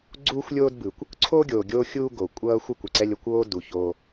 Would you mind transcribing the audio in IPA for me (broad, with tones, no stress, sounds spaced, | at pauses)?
ɡ͡ǀ uː˦ xʷ lʲ oː˦ d b ɯ˨ kʷ | ǀʰ o˦ ɡʲ oː˨ ɡʲ oː˦ xʲ uː˦ ɡ o˨ kʷʼ ʌː˦ xʷ ʌ˦ kʷ ɯ˨ ǀ ɛ˦ lʲ ʌ˨ kʷ oː˦ d u˨ ç o˦